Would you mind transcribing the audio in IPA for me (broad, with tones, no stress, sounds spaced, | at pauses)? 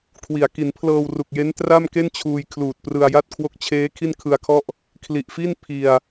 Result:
kʰ w i˨˩ a̯ k i˩˦ n pʰ l ɤː˧ w r u˨˩ k̚ j e˦˥ n t r a˥˩ m k e˥˩ n t͡ɕʰ uː˧ j kʰ l uː˨˩ t̚ p r ɯ˧ a̯ j a˥˩ t̚ kʰ w o˦˥ k̚ t͡ɕʰ eː˦˥ kʰ i˥˩ n kʰ ɯ˧ a̯ kʰ ɔ˥˩ ʔ | kʰ l i˨˩ ʔ f i˥˩ n pʰ i˧ a̯